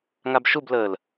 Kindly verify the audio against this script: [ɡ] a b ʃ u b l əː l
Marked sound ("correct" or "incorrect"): incorrect